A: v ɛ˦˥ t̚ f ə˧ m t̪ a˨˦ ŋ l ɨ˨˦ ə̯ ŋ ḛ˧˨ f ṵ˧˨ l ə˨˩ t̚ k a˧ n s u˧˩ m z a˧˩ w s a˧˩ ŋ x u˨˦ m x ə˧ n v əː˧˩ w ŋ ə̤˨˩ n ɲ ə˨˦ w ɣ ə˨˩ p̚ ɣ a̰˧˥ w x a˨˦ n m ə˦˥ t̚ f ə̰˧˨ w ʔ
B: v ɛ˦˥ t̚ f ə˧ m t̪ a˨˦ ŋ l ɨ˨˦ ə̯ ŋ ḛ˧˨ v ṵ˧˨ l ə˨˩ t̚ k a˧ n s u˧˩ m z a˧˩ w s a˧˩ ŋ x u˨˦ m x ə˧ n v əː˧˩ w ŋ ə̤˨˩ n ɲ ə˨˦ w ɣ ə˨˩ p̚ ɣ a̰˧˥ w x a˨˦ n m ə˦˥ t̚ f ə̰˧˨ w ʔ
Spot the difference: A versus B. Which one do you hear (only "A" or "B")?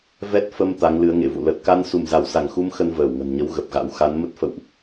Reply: B